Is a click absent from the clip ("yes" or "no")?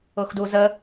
yes